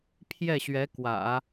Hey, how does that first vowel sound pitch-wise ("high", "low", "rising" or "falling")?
falling